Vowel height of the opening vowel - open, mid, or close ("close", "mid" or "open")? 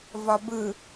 open